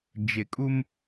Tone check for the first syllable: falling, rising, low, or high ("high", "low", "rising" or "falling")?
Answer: low